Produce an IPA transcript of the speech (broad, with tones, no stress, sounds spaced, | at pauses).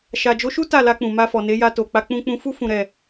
ʃ a˨ d͡ʒ o˨˦ ʃ u˦ t a˦˨ l a˧ k͡p ũ˨ m a˧ f ɔ˨ n e˨˦ j a˧ t o˨ k͡p a˨˦ k͡p ũ˧ k͡p ũ˧ f u˦ f ũ˧ ɾ ɛ˧